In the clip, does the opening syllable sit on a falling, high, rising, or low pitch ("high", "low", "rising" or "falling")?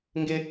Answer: high